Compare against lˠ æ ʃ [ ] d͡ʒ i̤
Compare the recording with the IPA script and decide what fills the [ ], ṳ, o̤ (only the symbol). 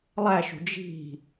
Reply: ṳ